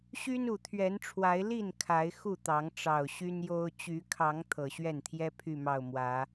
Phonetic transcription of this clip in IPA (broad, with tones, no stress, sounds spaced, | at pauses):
ɕ y˦ n u˨˩ t̪ʰ ɥ ɛ˨˦ n ʈ͡ʂʰ w a˨˦ ɪ̯ l i˥˨ n kʰ a˨˦ ɪ̯ x u˥˨ t̪ ɑ˨˦ ŋ ʈ͡ʂ ɑ˨˩ ʊ̯ ɕ y˦ n j o˦ ʊ̯ t͡ɕ y˨˦ kʰ ɑ˨˦ ŋ t̪ʰ ɤ˨˩ ɕ ɥ ɛ˥˨ n t̪ʰ j ɛ˦ pʰ y˥˨ m ɑ˥˨ ʊ̯ m w ä˨˦